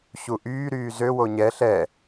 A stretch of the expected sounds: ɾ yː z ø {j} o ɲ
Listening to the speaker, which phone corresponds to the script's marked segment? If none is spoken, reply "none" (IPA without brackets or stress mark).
w